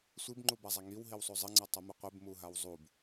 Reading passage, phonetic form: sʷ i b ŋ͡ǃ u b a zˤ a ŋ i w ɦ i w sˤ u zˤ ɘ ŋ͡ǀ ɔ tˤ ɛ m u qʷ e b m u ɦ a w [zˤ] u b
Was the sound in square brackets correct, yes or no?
yes